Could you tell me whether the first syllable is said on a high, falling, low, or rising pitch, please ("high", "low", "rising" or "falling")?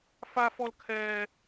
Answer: high